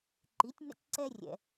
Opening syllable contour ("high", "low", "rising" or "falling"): rising